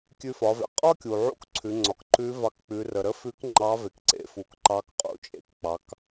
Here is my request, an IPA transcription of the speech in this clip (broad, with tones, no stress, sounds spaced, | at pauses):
kʲ ʉ˧ f ɒ˩˧ v ḛ˩ qʼ ɒ˥ kʲ u˩ ʕ ṵ˥ k ǀʰ ʉ˩˧ ŋ͡ǀ ɒ˩ k ǃ ʉ˧˥ v ɑ˧ k k͡p ʉ˩˧ r ə˩ ɾ ə˥ f ʉ˧˥ k ŋ͡ǃ ɑ˧˥ v e˩ k ǀ ḛ˩˧ f u˩˧ k ǃ ɑ˧˥ k qʼ ṵ˩˧ t͡ʃʼ ḛ˩˧ k k͡p ɑ˩˧ k